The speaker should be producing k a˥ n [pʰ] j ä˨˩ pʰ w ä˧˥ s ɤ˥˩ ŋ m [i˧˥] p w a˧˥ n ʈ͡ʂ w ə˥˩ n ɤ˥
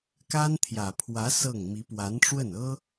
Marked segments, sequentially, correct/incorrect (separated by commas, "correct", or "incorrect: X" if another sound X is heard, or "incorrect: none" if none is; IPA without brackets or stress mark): incorrect: t̪ʰ, correct